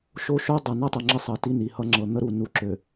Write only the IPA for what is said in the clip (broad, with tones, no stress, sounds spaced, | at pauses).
ʃ o˦ ʃ o˦ dˤ ʌ˨ n ʌ˦ tˤ ʌ˨ ŋ͡ǁ ə˦ sˤ ʌ˨ t i˦ n i˨ h ʌ˦ ŋ͡ǁ ɤ˨ n̪ ə˦ ɾ u˨ n u˨ ǁ ø˨